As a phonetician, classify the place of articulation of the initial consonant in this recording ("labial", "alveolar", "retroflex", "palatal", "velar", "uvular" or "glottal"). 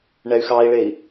retroflex